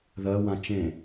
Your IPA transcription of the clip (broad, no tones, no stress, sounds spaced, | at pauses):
ð ɜ w ã t͡ʃ ẽ